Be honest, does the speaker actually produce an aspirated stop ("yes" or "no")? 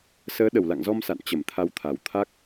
yes